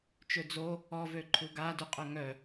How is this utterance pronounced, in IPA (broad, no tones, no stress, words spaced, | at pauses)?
t͡ʃød͡zo | ɔvø ǃʰuɡadyqʼo ŋœ